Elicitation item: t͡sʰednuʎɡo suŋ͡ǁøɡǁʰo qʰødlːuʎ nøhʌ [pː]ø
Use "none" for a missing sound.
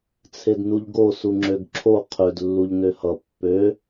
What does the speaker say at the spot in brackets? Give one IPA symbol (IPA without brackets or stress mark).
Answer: pː